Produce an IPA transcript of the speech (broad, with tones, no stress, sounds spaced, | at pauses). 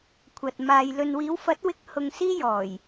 kʷʰ ɐ˨ t̚ m aː˨ j l ɵ˨ n w iː˨˧ w f ɐ˨˥ t̚ w ɪ˧ k̚ h ʊ˧ ŋ s iː˥ j ɔː˨˩ j